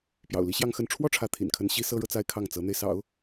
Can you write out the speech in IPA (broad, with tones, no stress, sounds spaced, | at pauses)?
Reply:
p j ɑ̰˨˩ ʊ̯ l i˧˥ ɕ j ɑ˥˧ ŋ x ə˥˧ n ʈ͡ʂʰ w ɔ˥˩ ʈ͡ʂʰ ä˧˥ t̪ʰ ḭ˨˩ n kʰ ə˥ n ɕ i˥ s ɤ˥ ɻ ɤ˨ t͡s a˥˧ ɪ̯ kʰ ɑ˥˩ ŋ t͡s ɤ˧˥ n̪ e˧ ɪ̯ s ɑ̰˨˩˦ ʊ̯